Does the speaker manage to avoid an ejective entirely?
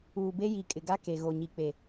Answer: no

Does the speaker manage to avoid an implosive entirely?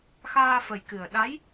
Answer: no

